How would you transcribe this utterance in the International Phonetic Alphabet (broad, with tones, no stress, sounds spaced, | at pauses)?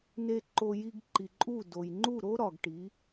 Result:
n e˧ ǃ o˧ j i˧ ɡ ǃ i˨ ǃʼ u˦˨ d o˨ j ŋ͡ǃ u˦˨ ɾ o˦ ɾ ɒ˨ ɡ ʈ i˨˦